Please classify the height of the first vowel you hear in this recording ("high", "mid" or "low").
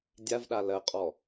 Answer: low